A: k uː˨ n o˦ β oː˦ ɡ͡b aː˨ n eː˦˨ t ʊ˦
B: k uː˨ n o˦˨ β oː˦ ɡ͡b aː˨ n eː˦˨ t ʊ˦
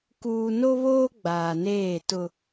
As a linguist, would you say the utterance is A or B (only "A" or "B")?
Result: A